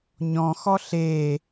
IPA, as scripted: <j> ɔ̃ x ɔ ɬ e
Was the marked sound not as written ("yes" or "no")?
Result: yes